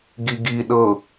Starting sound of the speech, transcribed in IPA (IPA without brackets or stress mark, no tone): ɡ